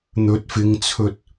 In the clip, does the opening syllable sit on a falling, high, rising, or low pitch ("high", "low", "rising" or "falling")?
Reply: rising